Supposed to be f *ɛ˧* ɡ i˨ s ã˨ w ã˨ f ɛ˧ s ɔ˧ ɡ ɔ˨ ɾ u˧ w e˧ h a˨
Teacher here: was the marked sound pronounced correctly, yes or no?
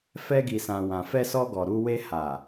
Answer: yes